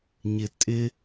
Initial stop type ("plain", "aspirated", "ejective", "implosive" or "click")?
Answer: ejective